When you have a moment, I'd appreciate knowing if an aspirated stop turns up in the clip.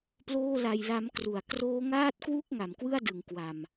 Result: no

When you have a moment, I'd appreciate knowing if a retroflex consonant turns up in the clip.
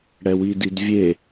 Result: yes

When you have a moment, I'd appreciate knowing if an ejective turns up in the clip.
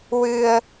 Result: no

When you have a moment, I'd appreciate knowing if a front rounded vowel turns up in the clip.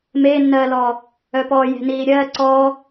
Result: yes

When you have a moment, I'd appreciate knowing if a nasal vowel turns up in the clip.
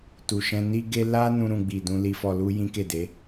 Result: yes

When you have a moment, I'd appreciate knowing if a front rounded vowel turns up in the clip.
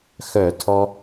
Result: yes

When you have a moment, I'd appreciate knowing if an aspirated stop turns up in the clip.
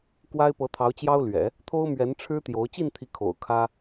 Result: yes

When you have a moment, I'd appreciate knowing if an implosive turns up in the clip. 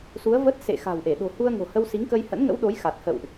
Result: yes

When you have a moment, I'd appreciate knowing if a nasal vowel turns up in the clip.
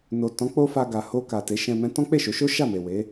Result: yes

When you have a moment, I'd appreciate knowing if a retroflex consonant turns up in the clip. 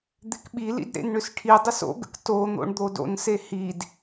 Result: yes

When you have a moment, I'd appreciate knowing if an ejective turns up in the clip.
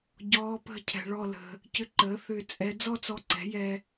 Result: yes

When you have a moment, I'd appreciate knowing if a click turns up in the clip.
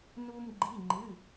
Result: yes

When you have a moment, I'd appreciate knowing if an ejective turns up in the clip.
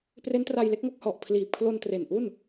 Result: no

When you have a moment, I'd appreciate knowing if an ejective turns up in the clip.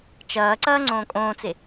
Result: yes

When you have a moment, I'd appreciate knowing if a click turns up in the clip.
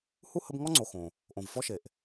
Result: yes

